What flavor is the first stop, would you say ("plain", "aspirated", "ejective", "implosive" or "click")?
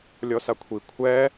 aspirated